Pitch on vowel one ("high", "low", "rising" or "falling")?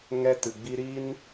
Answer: high